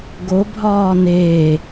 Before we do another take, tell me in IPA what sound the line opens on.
ɡ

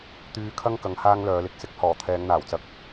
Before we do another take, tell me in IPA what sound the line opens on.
t̪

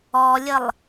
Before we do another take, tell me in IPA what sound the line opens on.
ɔ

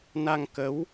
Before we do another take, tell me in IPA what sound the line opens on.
n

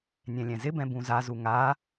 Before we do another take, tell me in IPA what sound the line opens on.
nʲ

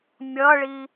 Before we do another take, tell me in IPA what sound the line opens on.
mʲ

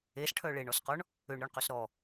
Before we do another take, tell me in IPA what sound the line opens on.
e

